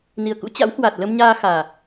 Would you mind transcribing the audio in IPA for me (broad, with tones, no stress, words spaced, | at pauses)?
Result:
ni˨˩ə̯kṵ˧˥ t͡ɕa̰˧˥whwa˨˩t̚lə˧mɲaː˧ xaː˨˩